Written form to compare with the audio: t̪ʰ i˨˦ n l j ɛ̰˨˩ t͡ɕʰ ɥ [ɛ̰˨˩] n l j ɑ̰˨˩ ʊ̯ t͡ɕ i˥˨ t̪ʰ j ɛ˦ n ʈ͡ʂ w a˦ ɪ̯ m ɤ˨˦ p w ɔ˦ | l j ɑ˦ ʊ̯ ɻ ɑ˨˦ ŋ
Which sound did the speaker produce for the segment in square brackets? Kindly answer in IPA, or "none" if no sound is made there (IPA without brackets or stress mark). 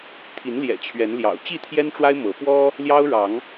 ɛ˨˦